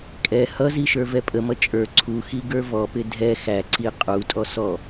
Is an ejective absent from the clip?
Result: no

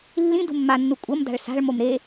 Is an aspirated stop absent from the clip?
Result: yes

